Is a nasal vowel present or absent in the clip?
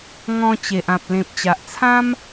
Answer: present